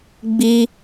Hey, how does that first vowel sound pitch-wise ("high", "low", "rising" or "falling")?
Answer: high